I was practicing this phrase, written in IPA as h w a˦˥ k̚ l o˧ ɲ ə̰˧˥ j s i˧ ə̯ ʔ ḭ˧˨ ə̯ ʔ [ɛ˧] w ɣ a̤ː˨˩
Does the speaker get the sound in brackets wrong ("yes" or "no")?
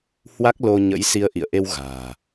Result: yes